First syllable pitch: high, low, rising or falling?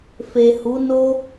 low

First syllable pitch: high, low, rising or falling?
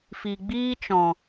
low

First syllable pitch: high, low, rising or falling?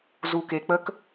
low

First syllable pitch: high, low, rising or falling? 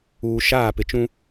low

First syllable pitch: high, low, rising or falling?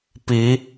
rising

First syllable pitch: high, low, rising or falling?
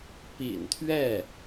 low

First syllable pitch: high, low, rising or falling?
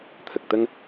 low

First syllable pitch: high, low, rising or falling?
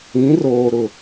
rising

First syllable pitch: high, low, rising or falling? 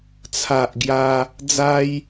low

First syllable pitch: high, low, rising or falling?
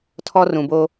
high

